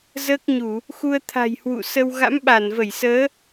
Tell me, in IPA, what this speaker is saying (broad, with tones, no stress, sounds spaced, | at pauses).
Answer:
z əː˦˥ k̚ ɲ u˧˩˨ | x u˧ ə̯ t̪ʰ a̤˨˩ j h w ṵ˧˨ s ə˧ w ɣ a̰˧˥ m ɓ a˧˩ n v ə˧˩ j s əː˨˦